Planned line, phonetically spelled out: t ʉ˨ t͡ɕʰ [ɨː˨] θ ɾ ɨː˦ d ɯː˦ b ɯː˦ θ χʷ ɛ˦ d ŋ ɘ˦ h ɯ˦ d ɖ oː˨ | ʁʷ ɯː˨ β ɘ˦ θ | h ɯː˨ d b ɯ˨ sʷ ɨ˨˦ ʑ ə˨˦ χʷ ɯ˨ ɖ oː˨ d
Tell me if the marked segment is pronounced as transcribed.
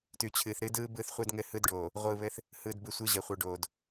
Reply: yes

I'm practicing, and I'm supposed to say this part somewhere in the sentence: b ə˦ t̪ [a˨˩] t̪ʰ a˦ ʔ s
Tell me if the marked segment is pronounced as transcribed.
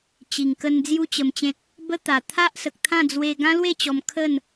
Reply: yes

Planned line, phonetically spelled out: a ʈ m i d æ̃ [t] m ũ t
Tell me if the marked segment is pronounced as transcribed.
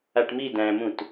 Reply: no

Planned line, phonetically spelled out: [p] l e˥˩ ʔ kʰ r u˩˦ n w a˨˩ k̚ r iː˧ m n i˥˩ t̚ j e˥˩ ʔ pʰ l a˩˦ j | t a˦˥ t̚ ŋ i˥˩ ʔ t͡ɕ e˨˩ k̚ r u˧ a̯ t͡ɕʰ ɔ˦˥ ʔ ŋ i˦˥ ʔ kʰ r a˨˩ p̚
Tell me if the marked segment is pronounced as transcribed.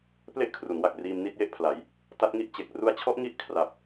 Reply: yes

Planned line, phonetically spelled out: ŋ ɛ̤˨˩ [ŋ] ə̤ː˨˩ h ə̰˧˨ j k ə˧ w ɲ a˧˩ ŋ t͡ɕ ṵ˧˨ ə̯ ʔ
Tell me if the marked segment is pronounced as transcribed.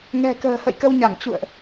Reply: no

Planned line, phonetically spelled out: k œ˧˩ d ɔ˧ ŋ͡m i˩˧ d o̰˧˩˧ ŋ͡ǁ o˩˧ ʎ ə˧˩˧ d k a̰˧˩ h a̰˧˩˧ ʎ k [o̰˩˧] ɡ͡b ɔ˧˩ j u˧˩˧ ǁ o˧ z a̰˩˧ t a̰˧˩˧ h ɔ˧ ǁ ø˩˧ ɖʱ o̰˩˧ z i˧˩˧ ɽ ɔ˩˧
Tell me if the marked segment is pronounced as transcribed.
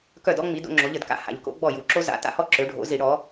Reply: yes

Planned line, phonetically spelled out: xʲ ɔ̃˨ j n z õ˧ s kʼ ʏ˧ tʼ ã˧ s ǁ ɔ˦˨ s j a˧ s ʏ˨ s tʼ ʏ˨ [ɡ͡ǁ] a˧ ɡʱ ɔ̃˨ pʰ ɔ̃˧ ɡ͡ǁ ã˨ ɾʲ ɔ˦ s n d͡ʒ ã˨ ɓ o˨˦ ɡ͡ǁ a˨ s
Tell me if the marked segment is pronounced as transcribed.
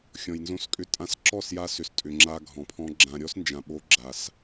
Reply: no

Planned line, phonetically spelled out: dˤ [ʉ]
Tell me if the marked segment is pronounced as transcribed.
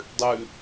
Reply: yes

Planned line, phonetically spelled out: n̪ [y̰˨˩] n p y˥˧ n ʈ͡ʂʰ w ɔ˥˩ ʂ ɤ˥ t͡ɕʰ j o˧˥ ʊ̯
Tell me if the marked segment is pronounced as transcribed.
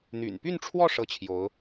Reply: yes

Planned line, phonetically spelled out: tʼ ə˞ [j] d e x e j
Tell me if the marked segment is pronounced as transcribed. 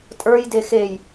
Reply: yes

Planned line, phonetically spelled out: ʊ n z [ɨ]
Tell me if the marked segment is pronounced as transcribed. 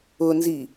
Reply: no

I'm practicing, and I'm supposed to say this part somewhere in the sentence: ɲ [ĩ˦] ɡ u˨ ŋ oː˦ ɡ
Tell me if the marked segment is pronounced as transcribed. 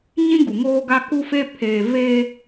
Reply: yes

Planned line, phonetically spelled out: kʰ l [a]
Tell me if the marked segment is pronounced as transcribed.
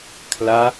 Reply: yes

